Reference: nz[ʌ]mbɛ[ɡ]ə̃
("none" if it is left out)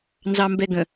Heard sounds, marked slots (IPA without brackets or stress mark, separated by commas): ɑ, ɡ